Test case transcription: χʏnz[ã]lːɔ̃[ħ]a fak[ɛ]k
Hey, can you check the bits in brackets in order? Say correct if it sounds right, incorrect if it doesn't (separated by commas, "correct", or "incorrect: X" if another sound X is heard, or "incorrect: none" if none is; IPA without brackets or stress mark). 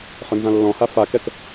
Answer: correct, incorrect: h, correct